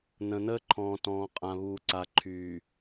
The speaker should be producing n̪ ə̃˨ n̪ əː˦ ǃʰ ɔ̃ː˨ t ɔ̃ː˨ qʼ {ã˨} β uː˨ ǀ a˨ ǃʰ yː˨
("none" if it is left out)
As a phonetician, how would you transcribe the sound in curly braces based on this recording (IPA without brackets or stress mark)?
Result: ã˨